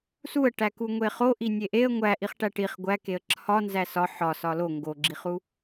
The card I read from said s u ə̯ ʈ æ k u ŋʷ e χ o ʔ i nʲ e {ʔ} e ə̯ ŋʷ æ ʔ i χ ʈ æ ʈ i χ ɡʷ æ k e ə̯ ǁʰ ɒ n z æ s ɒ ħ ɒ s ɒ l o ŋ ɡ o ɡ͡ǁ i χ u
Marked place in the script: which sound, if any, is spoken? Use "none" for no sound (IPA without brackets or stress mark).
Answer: ʔ